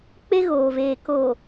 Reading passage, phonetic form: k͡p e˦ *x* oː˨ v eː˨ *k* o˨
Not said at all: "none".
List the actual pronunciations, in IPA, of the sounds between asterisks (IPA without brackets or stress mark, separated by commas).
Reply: ɣ, k